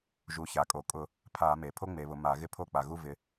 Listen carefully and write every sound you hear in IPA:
ʒ u˩˧ ç a˩ kʼ o˩ kʼ ʊ˧˩˧ | pʰ a˧˩˧ m e˩ pʰ o˦ ŋ͡m e˩˧ β ʊ˩˧ m a˧˩˧ ɣ ɪ˦ pʰ o˦˨ k͡p a˩ ɣ u˦˨ v ɪ˩˧

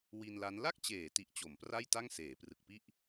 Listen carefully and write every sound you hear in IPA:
w i˧ n l a˦˥ n l a˥˩ k̚ t͡ɕ eː˩˦ t i˨˩ ʔ t͡ɕ o˩˦ m p r a˥˩ j t a˥˩ ŋ s eː˩˦ p r ɯ˨˩ k̚ p i˥˩ ʔ

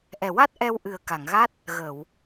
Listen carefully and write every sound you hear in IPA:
ʔ ɛ˨˩ w a˦˥ t̚ ʔ ɛ˧ w ʔ ɨ˨˩ ə̯ k a˨˩˨ ŋ ɣ a˦˥ t̚ | ɣ əː˨˩˨ w

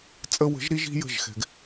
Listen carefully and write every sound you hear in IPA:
t͡sʼ ə˧ w ə̤˨˦ ʒ ɾ i˦ ʒ i̤˦ j ə̤˦˨ ʒ x ɛ̤˧ ɡ

